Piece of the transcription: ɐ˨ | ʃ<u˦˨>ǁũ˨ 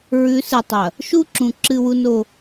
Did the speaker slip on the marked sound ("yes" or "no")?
yes